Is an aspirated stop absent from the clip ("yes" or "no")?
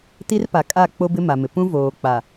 yes